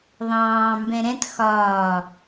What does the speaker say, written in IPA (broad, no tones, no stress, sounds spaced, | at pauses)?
ðˤ ɑ̃ː m b ɛ̃ ɾ ɛ̃ t x ɒː